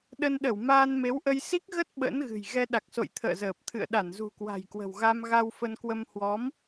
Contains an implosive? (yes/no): yes